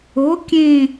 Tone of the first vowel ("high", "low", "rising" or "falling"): rising